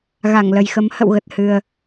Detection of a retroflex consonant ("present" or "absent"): absent